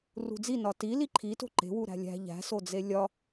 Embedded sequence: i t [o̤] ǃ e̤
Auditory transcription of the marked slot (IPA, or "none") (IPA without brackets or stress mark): o̤